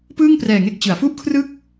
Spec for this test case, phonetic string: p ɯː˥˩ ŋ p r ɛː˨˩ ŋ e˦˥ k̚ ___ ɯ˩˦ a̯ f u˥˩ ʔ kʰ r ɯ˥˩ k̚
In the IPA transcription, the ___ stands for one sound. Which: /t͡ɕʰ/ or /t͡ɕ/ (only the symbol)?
t͡ɕ